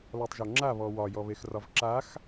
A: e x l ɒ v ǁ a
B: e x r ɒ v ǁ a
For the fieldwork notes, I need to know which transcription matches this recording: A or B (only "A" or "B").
B